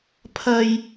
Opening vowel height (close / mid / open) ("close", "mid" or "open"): open